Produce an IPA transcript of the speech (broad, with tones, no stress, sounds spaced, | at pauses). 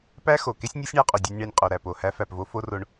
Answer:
p æ˦ x o˨ k e˦ sʲ nʲ ɒ˦ sʲ ɳ æ˧ qʼ u˨ dʲ u˧ nʲ ɳ æ˧ nʲ qʼ o˨ ɾ æ˨ p o˨ h æ˧ f æ˨ p v o˧ f o˦ r o˧ ɳ